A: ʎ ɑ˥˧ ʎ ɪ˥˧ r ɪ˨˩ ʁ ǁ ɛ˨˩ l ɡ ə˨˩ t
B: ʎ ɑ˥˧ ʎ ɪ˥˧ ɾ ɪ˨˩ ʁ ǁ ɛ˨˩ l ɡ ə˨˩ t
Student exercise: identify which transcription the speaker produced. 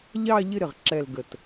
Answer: B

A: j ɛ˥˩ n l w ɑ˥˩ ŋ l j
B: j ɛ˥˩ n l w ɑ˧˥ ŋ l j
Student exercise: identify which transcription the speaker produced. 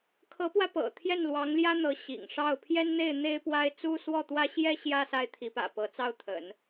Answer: B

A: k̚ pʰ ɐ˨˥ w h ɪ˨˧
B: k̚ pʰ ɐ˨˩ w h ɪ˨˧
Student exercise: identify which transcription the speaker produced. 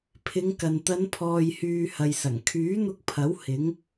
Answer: A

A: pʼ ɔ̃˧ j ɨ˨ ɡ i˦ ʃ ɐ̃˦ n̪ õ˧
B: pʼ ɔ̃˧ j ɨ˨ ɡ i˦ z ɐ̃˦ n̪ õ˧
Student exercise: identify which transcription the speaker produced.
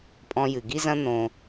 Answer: B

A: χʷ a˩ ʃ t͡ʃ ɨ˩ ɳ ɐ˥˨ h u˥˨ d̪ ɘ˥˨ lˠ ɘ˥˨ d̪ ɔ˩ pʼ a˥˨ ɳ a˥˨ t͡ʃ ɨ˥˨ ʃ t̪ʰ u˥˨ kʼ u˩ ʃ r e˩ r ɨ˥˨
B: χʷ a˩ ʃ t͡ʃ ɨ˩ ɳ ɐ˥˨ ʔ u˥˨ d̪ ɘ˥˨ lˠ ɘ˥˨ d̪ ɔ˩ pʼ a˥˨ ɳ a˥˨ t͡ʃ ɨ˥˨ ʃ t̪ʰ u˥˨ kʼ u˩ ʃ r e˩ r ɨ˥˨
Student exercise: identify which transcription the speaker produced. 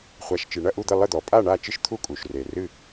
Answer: B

